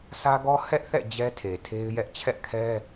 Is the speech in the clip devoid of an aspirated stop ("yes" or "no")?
no